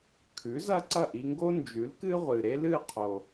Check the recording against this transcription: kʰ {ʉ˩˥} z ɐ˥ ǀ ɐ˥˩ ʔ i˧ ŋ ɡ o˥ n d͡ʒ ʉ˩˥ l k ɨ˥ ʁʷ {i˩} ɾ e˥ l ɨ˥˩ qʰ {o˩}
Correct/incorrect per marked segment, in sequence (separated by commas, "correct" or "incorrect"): correct, incorrect, correct